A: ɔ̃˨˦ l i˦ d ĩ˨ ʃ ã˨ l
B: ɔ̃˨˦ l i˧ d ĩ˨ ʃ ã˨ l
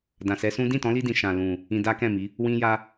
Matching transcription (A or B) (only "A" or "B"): B